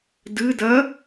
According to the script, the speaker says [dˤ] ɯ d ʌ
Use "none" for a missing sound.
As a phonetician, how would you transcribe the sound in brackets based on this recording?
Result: d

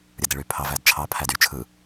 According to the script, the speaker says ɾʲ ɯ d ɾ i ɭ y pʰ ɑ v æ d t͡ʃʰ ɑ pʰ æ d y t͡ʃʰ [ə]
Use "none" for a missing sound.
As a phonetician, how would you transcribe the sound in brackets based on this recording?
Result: ɯ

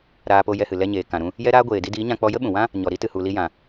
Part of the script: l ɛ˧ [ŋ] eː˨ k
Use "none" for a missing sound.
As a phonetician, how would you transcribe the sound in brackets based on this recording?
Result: ɲ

